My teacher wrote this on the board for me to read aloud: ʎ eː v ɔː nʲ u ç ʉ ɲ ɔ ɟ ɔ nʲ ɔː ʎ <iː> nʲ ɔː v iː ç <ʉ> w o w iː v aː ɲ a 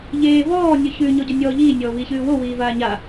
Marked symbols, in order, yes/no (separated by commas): yes, no